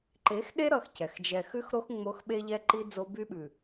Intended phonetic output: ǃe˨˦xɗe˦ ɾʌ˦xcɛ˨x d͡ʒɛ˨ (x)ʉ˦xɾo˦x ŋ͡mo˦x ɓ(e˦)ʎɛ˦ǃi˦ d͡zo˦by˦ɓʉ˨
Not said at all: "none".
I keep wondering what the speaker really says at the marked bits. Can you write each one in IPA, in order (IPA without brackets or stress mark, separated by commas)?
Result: x, e˦